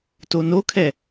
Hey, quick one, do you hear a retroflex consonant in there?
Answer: no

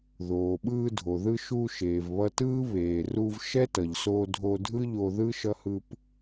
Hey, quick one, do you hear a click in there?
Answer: no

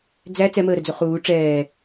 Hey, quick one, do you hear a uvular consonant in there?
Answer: yes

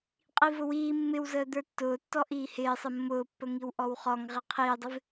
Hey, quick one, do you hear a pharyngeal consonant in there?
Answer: no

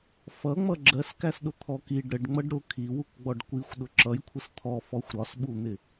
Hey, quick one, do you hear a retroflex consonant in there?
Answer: yes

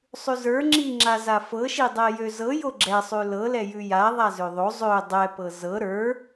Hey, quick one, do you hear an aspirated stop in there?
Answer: no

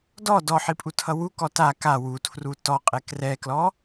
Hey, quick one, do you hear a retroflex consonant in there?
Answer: no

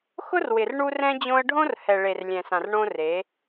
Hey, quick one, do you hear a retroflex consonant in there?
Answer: yes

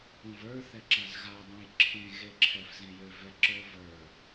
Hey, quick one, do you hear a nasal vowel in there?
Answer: yes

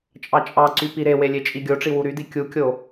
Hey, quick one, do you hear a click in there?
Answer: yes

